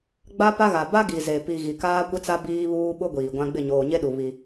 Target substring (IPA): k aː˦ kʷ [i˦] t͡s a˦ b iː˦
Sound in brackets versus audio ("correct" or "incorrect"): incorrect